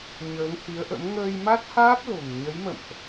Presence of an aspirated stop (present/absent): absent